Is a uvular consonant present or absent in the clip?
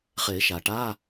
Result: present